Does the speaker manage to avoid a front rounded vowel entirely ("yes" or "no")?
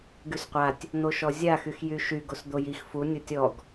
no